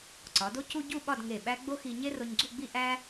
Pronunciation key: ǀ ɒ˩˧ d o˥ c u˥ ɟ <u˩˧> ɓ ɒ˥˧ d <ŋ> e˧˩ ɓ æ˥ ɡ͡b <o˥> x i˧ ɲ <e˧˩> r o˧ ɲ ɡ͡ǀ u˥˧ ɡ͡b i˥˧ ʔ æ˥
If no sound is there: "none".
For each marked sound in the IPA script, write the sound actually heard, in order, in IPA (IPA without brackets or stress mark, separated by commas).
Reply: u˥˧, ŋ, o˥, e˥